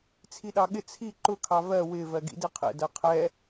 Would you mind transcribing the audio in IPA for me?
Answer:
t͡sʰiɗɑɠɪ t͡sʰi ǃʊ kʰɑvɜ wɪ vɜɡḭdɪqʰɛ̰ dɜqʰɛ

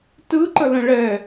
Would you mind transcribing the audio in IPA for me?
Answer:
tɯ ǃələ̃ɭɛ

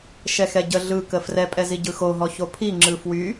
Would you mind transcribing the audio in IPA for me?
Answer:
ʃɛxɛɟə ɮɯkə frɛpʼɛzi ɟɯxoɦɔ çopʰi ŋ͡ǁɯfwy

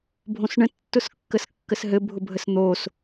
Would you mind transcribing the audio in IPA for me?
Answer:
bʱõsɳə̃ tːʊskːəskːəsɦɘ bʱʊbʱəsn̪os

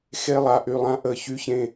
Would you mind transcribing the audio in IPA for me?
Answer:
xe˦lˠa˨ ʔy˨lˠã˦ ʔə˨çy˦çẽ˦

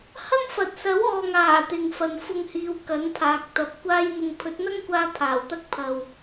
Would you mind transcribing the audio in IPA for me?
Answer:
hɐ˥ŋfɐ˨t̚ sɐ˨˥wɔː˨ŋaː˨˩ t̪ɪ˨ŋfɐ˨n fʊ˧ŋhiː˨˧w kɐ˨˥npʰaː˨k̚t̪ɐ˨˥p̚ kʷaː˧jn̪ʊ˨ŋ pʰɵ˨˥t̚n̪ɐ˥ŋkʷaː˧ pʰaː˨˩wt̪ɐ˥k̚pʰɐ˨w

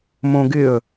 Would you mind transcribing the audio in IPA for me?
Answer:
mõɡɪə̯

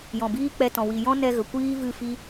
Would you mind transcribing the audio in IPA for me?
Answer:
jɔ̃˨biː˦k͡pɛ˧tɔ̃˨ wi˨jɔ̃˦nɛ˧ɣə˨ kʷiː˦vɨ˦˨fi˦

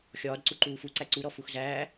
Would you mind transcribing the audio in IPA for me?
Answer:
xʲɒːd ǀuǃuːfuǀæ ǀuɾɔ fuxzæː

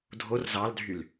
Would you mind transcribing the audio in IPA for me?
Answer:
dʱor zɑldʱyl

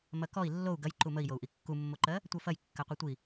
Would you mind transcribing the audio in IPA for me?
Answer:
mɐkɔi̯ lːou̯ ɡɐj ǃuməi̯jou̯ ʔikːumːoǃɜ | tʷɜfɐj kːɜqʷitʷi

